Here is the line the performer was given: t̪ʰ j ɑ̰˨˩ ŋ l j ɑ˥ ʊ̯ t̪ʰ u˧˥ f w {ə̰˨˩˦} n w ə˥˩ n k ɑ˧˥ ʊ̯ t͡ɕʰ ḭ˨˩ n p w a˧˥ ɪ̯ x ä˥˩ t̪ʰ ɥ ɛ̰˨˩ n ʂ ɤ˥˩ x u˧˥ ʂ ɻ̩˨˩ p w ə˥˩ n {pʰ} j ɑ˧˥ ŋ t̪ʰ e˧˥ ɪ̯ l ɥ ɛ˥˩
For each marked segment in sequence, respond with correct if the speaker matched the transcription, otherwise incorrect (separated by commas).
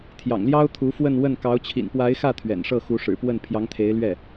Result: incorrect, correct